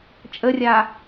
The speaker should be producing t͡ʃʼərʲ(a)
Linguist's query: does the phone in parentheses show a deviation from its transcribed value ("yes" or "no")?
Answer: no